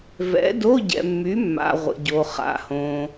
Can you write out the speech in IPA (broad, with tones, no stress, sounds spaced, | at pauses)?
v ɛ̰˨˥ d o˧˥˧ ɟ ɛ̰˨ mː y˨˥ mː a̰˨ ʁʷ ə̰˨ ɟ o˨ χ a̰˨ h õ˨